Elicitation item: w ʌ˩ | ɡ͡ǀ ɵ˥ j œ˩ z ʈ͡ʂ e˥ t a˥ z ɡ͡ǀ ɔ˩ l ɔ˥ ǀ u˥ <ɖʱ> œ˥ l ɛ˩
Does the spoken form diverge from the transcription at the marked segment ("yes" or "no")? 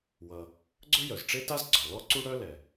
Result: yes